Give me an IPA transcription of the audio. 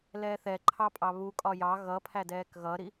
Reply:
l ɛː θ ɛ ǃʰ ɑ pʼ ɑ β u kʼ ɒ j ɑ ɣ ʌ pʰ æ d ɛː k ɣ ʌ ɾ i

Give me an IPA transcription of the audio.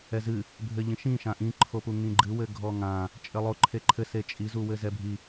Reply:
ɛ z ɨ | bʱ ɘ ʎ ĩ ʃ ĩ ʃ ã ʔ ĩ ǃʰ o p u ŋ ĩ ɡ͡ǃ ɨ w ɘ ɡʱ ɔ ŋ ã | t͡ʃʼ ɘ lˠ o ǃʰ e ǃʰ ɘ s e t͡ʃʼ i z u w ɘ z ɛ bʱ i

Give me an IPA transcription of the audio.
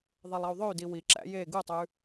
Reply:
ðˤ e lˠ ɑ u̯ ðˤ ø y̯ d i w i ǁ æ̰ j e ɡ u tˤ ʉ

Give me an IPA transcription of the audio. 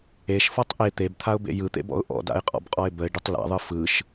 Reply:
e ʃ f ɔ tˤ ʔ e t̪ e b t̪ʰ a ʊ̯ b ḛ j ɯ t̪ ḛ b ɔ̰ ʊ̯ ʔ ɔ̰ d a̰ ɪ̯ qʼ ɔ̰ b qʼ ɔ ɪ̯ b ə ɪ̯ ɖ ə tˤ l a̰ ðˤ ɯ f ɯ ʃ

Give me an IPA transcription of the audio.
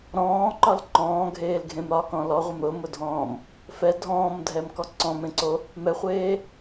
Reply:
ɾ ɔ̃ː ǃ ɒ l ǃ ɔ̃ː ɡʱ eː l ɡʱ ẽ m ɾ ɒ k ɔ̃ l ɔ ʁʷ ɛ m ɾ ʊ m ʊ dʱ ɔ̃ː m | f ɛ dʱ ɔ̃ː m dʱ ɛ m k ɔ ǀ ɔ̃ m ẽ ǀ o | m ɛ χʷ eː

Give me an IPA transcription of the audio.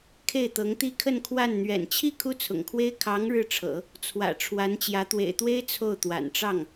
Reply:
kʰ e˥˩ ɪ̯ t̪ ɤ˧˥ ŋ t̪ i˥ kʰ ə˥˧ n kʰ w a˥˩ n n̪ ɥ ɛ̰˨˩ n t͡ɕʰ i˥˩ kʰ u˥ t͡sʰ ʊ̰˨˩ ŋ kʰ w e˥ ɪ̯ kʰ ɑ˧˥ ŋ ɻ ɻ̩˥˩ ʈ͡ʂʰ ɤ̰˨˩˦ | t͡sʰ w ä̰˨˩ ʈ͡ʂʰ w a˧˥ n t͡ɕ j ä˧˥ t̪ w ḛ˨˩ ɪ̯ t̪ w e˥ ɪ̯ t͡sʰ o˥˩ ʊ̯ t̪ w a̰˨˩ n ʈ͡ʂ ɑ˥˩ ŋ

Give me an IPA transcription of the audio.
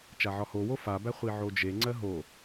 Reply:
t͡ʃ a ʕ ɒ h o w o f a b æ χʷ i ʕ o d͡ʒ e ŋ͡ǀ ɜ ɦ o

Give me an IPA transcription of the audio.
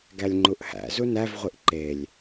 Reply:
ɡ æ lʲ ŋ͡ǃ u ʔ h æ̰ z u n æ v ʁʷ i ʔ ǃ e lʲ

